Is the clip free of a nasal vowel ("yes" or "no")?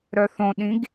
no